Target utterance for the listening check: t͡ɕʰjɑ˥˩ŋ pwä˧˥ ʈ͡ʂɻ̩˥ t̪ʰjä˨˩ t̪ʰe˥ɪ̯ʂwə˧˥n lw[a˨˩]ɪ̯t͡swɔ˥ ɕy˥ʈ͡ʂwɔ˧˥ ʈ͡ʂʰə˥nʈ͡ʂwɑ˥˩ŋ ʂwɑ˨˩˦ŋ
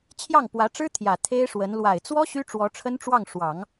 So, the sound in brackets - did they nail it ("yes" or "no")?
yes